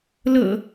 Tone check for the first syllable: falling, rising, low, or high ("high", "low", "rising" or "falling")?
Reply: low